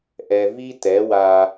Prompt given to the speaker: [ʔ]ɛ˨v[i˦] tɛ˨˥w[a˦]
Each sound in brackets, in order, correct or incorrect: correct, correct, correct

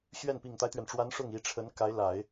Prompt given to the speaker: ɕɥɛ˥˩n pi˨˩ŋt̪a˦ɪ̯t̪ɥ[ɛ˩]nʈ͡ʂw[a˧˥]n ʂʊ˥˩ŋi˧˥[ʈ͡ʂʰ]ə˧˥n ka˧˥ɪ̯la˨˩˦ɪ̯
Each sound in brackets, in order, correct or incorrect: correct, correct, correct

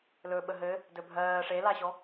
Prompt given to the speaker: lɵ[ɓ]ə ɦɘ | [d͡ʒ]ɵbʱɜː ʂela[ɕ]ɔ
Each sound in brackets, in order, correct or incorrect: correct, incorrect: d, correct

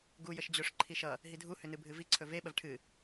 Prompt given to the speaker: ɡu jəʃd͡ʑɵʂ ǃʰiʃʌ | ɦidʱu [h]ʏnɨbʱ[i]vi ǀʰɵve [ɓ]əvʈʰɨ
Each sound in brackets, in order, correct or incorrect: correct, incorrect: ɨ, correct

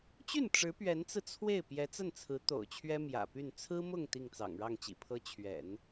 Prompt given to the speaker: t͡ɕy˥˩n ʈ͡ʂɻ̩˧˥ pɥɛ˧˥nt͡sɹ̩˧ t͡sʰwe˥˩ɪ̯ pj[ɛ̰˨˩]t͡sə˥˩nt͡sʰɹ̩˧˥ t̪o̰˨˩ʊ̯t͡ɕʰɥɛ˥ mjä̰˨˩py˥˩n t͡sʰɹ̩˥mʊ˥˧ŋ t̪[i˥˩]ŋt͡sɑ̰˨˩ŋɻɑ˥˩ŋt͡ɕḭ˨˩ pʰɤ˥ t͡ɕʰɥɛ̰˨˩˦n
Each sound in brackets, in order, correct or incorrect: incorrect: ɛ˧˥, correct

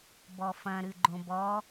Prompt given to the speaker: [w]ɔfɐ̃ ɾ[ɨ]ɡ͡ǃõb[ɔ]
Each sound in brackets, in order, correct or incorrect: incorrect: b, correct, correct

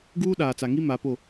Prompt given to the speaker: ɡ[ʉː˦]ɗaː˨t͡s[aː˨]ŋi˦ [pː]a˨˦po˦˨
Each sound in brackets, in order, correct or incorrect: incorrect: uː˦, incorrect: a˨, incorrect: m

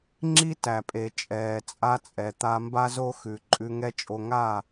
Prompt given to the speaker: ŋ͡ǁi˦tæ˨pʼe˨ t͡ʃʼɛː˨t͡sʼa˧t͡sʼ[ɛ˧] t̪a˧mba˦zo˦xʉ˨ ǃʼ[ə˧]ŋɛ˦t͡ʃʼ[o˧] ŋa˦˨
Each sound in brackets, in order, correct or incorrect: incorrect: ɛ˨, incorrect: ʉ˧, correct

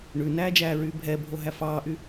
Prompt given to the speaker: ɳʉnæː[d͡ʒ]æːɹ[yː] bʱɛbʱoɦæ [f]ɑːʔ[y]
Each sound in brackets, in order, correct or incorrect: correct, correct, correct, correct

